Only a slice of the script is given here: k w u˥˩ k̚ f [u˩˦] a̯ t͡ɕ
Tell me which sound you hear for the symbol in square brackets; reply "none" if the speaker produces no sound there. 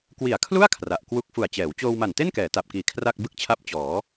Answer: u˨˩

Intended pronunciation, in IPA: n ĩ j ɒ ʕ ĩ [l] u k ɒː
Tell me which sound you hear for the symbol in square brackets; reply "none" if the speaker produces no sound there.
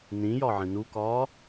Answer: n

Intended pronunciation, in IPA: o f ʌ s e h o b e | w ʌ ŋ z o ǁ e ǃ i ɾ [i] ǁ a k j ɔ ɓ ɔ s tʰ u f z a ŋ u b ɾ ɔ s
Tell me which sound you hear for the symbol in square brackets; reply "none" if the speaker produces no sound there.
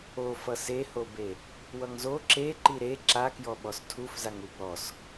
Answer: e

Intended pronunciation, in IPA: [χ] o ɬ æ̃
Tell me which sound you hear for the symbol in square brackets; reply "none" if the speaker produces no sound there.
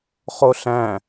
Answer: χ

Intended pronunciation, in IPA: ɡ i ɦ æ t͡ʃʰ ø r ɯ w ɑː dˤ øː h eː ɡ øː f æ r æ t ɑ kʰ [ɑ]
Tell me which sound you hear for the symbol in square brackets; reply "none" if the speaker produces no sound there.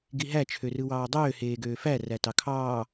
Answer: ɑː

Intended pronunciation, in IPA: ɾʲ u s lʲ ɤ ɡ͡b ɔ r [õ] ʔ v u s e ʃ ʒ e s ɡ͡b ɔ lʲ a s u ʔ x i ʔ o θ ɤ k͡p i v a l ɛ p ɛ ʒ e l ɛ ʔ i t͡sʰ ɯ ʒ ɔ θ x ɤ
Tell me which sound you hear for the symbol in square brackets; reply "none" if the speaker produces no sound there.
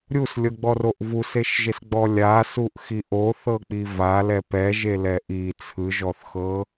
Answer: o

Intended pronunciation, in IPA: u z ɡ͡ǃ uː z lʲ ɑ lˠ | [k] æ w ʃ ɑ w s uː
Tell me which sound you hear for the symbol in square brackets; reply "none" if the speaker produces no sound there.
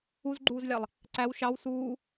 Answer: ǀ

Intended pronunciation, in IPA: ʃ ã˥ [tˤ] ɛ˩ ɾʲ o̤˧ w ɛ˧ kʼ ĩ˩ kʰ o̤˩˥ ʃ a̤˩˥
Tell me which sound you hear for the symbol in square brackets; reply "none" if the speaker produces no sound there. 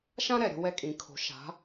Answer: ɾ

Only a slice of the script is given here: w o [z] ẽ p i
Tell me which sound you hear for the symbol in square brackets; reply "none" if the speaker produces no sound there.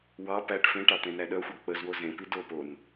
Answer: z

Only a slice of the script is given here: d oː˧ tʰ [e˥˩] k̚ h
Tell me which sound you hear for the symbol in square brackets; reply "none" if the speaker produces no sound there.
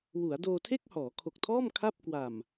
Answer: e˥˩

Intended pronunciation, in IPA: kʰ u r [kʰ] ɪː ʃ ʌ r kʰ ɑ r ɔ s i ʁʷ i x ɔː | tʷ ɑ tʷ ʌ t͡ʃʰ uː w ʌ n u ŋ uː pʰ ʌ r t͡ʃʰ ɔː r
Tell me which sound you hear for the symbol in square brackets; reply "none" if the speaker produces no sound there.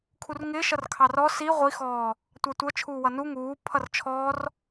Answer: ŋ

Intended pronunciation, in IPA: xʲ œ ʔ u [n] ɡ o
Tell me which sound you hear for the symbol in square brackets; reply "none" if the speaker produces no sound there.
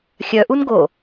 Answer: n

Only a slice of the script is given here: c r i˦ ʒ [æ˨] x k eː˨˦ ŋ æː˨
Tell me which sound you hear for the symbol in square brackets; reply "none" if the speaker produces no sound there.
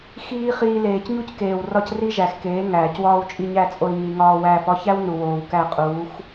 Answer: æ˨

